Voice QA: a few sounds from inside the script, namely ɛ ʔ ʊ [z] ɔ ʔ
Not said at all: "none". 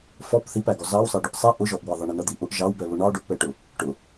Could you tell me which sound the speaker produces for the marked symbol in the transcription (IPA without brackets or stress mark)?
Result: ʒ